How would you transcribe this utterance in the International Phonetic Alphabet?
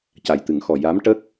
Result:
c a˨˩ j t̪ ɨ˨˩˦ ŋ x ɔ˨˩ j a˧˥ m ʈ ə˦˥ k̚

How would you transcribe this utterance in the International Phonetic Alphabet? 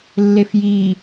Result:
lː e f j i

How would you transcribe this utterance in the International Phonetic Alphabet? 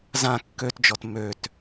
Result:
z ã kː ø t d͡ʒ ɔ t m ø t

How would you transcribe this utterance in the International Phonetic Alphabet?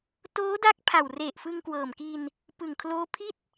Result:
t oː˦˥ d a˦˥ k̚ pʰ a˨˩ w r e˨˩ ʔ f ɯ˧ ŋ k w ɤː˨˩ m k i˧ n | p ɯ˨˩ ŋ kʰ l oː˦˥ pʰ i˥˩ t̚

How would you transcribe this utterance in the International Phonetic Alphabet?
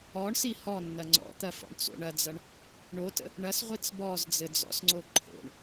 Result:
ɔ ɳ s i h ɔ nː ɐ ŋ͡ǀ ɔ̰ t̪ ɐ f ɔ̰ ɳ t͡s o̰ ɳ ɐ d͡z ɐ ɳ | ɳ o t ə̰ | ɳ ɐ s ʁʷ i t͡s b ɔ z d͡z ɘ d͡z ɔ̰ s ŋ͡ǀ o ǃʰ o̰ ɳ

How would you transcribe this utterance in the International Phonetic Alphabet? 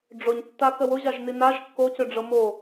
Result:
ɖ͡ʐ ʊ ɲ tː a k ə w ʊ ʑ a ʒ n i n a ʒ kː o c ʏ ɖ͡ʐ ɤ m o

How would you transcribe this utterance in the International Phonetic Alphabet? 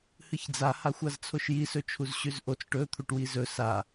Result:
h ɨ ç d͡z a h a xʷ a z t͡sʰ o ʃ j i s ɵ t͡ʃʰ u z ɕ ʉ z ʔ o t͡s ʈ ɵ t̪ʰ u ʈ w i z ɵ s a

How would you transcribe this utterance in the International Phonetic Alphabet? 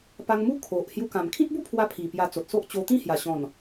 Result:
p a˧ ŋ m u˦ kʰ o˨ ʔ h j u˧ k ã˨˩ m kʰ ĩ˦ t̚ b u˥˧ pʰ w a˧ pʰ i˨˩ p j a˧ t͡s o˨ t̚ s o˦ ʔ t͡ɕ o˧ t̪ ĩ˥˧ h j a˨˩ ɕ ɔ̃˨˩ n

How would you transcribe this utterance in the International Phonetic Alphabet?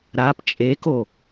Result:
ɾ a p t͡ʃʼ e k o

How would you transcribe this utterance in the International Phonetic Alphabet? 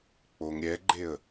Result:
k͡p o ŋ ɾʲ ɛ ɡ͡ǃ e ə̯

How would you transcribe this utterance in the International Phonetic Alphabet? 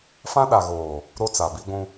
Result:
f ã˦ ɗ a˨ ɣ oː˨ | ɾ o˦ t͡s a˨ b i˦ ɡʷ ũ˦

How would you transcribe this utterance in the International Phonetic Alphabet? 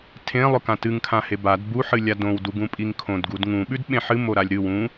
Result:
tʰ ẽ lˠ ɵ k ã t ɨ ŋ kʰ ã h e b a d b u ħ ɨ lʲ a d õ w d u ɡ ũ pʼ i ŋ kʰ õ d ɡ u d ŋ ũ ɓ ʉ d ɓ ẽ ħ ɨ m o ɾ a lʲ ɾ ɨ w ũ

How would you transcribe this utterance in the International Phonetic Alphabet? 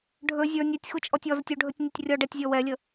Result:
ɖʱ ɵ zʲ ə˞ nʲ ɛ tʲ x u t͡ʃʼ ɔ tʲ ɔ z ə tʲ u ɖʱ ɵ tʲ nʲ ɵ tʲ rʲ ɔ ɖ ɛ tʲ zʲ ɔ w ɛ lʲ ə

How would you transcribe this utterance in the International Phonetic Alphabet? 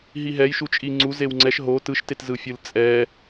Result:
ɦ i ɦ ɛ j ʃ u t͡ʃʼ i ŋ͡ǀ u z e w ŋ͡ǀ ɛ ʃ ɦ o t ɯ ʃ t e t z ɯ fʲ ɯ l t͡sʼ ɛ

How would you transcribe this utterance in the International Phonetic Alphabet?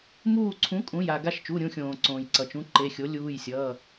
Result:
m uː˦˨ ǀʰ ũ˨˥ kʼ ũ˩˧˩ j a˦˨ ɡ a˦˨ ʃ t͡ʃ u˩˧˩ ɾʲ ũ˦˨ xʲ õː˩ ǀ õː˩ j ǀ ʌ˩ t͡ʃ ũ˨˥ ǃ e˩˧˩ xʲ o˨˥ lʲ uː˩˧˩ j sʲ ʌː˩˧˩

